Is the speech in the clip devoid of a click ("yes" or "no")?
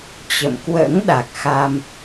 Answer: yes